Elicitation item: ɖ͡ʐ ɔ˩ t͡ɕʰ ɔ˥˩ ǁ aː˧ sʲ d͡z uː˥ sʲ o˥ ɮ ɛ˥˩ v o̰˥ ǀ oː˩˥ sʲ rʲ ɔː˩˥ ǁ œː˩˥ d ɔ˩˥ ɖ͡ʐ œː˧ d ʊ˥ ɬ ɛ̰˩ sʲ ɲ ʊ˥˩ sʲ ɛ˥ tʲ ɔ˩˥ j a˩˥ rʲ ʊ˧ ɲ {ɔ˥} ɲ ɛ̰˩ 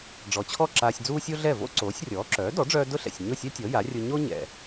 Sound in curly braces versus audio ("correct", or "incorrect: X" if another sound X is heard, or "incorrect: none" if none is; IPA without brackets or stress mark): incorrect: o˥